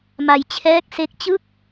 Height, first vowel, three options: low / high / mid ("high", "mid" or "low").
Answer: low